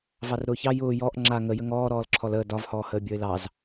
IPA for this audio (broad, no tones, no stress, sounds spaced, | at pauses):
v ɑ r ɾ ʊː ç ɑ j ʊː j ɔ ʔ ŋ͡ǁ a ŋ ə j ə ŋ ɔː ɾ ɔː l ǁʰ ɔ l əː d ɒ v h ɔː h əː bʲ ɔ ɪ̯ l ɑ z